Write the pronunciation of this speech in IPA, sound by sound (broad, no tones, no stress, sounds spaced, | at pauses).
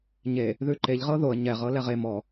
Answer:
ɲ e | ð ʉ ǃ e ʎ ʁ ɤ ð o ə̯ ɲ ɛ ʁ ɤ l ɛ ʁ e m ɔ